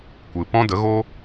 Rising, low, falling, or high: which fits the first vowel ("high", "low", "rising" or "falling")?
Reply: low